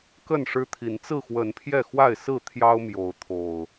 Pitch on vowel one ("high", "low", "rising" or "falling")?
falling